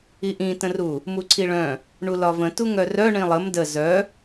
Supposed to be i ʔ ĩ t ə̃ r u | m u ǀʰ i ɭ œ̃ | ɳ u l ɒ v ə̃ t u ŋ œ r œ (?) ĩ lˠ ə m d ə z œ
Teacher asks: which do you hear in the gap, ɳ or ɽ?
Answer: ɳ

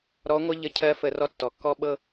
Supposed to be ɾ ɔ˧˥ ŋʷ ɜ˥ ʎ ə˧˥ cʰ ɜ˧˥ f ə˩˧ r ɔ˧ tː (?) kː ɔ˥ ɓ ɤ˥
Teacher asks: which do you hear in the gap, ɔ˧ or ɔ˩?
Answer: ɔ˩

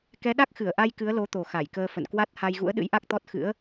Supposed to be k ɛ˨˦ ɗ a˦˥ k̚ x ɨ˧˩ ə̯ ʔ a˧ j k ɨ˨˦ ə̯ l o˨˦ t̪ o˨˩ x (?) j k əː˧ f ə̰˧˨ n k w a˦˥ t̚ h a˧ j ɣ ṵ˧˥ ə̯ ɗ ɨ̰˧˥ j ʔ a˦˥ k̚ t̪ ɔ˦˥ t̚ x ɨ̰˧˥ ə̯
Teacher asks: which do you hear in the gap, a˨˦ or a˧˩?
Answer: a˧˩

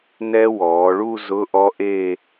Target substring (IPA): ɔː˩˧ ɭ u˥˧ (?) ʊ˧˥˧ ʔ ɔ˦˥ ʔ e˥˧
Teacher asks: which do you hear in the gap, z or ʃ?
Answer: z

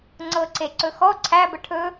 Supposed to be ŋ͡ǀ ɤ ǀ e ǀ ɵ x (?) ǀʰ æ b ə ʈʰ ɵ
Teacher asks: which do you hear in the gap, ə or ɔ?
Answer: ɔ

